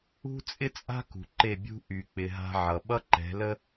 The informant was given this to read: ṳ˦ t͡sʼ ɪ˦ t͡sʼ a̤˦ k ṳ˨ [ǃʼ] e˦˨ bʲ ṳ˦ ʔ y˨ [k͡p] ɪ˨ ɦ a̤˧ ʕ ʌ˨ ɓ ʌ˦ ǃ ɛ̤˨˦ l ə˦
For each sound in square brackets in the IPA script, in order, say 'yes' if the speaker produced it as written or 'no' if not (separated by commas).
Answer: no, yes